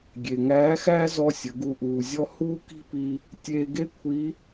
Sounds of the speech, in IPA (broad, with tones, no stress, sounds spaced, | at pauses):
ɡʲ e˩ ŋ æː˧˥ x æː˥ z ɔ˥ sʲ ə˩˧ ɡ u˧ ʔ uː˩ zʲ ɔ˧ h uː˥ k i̤˥ p iː˧ | tʲ eː˧ ɡ e˥ kʷʰ iː˧˥